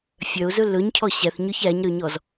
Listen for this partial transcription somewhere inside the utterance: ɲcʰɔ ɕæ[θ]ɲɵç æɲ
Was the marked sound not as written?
no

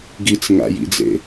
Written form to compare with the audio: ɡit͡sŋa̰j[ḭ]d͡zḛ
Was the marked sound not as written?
no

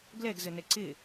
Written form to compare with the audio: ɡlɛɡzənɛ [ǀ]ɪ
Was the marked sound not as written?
no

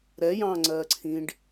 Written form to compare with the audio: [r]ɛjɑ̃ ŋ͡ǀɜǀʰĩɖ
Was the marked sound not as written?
yes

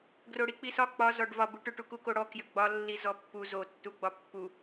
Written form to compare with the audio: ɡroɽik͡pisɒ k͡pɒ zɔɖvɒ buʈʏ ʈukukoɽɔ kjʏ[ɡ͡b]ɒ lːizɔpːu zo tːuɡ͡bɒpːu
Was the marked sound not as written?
no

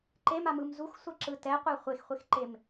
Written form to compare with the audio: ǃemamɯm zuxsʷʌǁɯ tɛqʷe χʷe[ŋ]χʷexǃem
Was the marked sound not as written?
yes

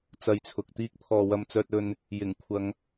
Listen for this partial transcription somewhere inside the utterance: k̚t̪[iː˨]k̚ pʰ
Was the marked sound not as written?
yes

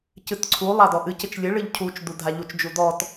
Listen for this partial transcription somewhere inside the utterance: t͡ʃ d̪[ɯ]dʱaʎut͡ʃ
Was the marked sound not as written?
yes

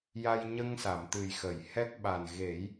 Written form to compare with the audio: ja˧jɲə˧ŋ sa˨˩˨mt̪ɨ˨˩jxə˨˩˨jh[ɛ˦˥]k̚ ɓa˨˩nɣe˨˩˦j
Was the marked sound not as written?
no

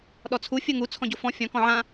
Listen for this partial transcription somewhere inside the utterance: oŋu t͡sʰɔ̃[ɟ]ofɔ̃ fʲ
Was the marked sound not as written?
no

